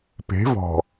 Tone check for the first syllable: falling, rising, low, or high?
rising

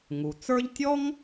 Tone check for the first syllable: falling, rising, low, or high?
low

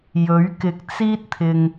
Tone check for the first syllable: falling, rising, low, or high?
rising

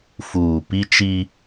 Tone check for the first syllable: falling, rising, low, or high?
low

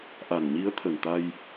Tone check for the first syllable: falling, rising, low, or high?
low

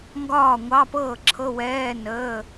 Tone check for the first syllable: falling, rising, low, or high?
falling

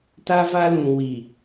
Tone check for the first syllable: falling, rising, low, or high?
high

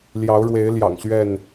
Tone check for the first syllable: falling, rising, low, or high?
rising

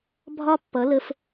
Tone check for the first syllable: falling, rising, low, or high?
high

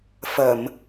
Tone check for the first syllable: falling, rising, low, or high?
low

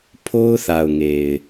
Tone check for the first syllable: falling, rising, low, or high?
high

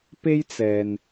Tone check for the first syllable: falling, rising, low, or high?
high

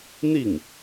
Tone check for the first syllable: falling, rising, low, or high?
falling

